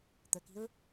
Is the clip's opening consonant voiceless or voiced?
voiceless